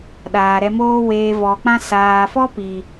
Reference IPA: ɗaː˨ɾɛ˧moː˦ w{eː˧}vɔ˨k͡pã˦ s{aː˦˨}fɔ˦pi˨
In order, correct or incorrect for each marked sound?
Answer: correct, incorrect

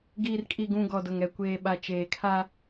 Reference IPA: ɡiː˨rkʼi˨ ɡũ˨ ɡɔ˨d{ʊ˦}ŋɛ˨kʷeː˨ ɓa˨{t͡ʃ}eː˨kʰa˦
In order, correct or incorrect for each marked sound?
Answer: incorrect, correct

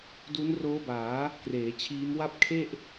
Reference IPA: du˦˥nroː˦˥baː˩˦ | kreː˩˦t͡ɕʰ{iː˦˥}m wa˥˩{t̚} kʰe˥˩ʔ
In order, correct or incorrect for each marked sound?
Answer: correct, incorrect

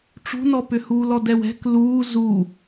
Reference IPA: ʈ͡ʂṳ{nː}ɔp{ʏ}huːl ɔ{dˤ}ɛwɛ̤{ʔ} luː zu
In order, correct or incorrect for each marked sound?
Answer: incorrect, correct, incorrect, incorrect

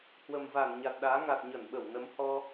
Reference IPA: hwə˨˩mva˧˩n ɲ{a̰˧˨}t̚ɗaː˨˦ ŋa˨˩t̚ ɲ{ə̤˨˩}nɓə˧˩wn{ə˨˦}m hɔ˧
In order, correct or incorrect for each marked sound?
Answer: incorrect, incorrect, correct

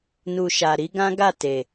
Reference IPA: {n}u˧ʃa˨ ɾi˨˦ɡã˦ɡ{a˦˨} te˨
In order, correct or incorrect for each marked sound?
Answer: correct, correct

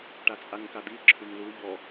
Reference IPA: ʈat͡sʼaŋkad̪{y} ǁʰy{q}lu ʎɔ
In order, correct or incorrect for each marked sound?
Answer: incorrect, incorrect

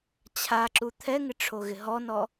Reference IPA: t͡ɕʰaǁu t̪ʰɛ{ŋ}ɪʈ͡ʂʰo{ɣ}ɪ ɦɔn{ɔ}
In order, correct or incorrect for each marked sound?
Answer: correct, correct, correct

